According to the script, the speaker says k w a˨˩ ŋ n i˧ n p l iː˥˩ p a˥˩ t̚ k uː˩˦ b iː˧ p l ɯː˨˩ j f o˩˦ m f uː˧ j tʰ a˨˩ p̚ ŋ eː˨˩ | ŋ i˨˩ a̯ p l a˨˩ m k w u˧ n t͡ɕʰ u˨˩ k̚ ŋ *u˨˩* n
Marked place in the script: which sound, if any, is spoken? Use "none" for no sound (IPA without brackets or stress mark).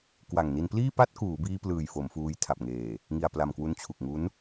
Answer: u˦˥